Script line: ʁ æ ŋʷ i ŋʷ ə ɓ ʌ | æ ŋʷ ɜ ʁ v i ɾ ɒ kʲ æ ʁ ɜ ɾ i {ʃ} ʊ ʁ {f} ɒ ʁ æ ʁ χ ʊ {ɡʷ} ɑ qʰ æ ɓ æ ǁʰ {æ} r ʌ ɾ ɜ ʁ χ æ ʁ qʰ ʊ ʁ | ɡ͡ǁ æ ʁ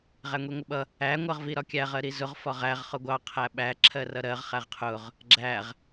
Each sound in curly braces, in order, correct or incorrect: incorrect: z, correct, correct, incorrect: ɜ

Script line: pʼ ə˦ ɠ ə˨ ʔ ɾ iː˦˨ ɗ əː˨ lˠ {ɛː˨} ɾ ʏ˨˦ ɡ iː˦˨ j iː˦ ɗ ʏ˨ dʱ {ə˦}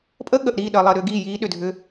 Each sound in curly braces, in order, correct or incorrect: incorrect: əː˨, incorrect: ʏ˦

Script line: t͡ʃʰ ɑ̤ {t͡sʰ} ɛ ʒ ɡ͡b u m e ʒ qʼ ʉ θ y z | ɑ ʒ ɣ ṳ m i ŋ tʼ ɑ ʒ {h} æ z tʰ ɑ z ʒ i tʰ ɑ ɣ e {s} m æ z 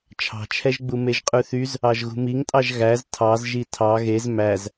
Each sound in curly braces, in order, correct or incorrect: incorrect: t͡ʃʰ, incorrect: ɣ, incorrect: z

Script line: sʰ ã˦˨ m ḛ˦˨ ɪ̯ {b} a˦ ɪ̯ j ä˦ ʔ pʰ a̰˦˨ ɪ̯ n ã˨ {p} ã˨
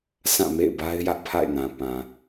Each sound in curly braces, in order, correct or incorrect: correct, correct

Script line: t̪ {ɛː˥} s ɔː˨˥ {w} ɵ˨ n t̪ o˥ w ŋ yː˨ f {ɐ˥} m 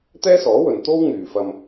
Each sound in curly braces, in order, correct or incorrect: correct, correct, incorrect: ɐ˧

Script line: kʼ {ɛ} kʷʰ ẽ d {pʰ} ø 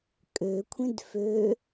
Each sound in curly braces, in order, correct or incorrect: incorrect: ø, incorrect: f

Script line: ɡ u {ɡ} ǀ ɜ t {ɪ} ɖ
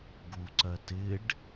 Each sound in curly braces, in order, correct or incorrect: incorrect: none, correct

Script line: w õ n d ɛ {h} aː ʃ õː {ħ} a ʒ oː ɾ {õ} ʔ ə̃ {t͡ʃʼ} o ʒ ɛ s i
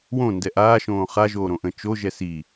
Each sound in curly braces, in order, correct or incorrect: incorrect: ʔ, incorrect: χ, correct, incorrect: t͡ʃ

